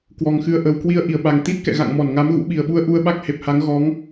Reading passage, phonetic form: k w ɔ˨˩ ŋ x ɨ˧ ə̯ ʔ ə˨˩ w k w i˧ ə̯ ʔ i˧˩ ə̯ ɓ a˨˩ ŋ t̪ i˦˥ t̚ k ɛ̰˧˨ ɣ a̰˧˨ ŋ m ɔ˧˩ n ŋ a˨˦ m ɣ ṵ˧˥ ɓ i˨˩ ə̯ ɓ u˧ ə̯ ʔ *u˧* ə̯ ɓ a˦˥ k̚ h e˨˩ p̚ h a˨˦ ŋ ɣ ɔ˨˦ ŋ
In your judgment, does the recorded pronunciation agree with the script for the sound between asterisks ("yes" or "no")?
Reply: yes